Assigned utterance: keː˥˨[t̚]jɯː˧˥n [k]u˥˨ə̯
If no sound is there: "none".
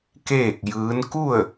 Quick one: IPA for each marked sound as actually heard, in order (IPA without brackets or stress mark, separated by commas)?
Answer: k̚, k